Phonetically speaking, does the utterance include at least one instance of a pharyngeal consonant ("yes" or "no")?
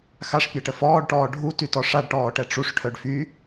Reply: no